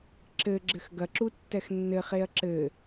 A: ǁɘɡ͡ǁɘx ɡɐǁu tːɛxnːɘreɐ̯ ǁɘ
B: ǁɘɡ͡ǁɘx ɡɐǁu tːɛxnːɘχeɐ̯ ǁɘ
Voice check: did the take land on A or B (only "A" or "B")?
B